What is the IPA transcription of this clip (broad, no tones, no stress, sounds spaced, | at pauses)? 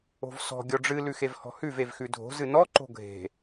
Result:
o̤ v s ɔ̤ ɡʲ ɔ ɖ͡ʐ ɨ l ʉ x e v h ɔ̤ h ʉ v e v x ʉ dʱ o̤ z ɨ n ɔ ǃ o̤ ɡʱ e̤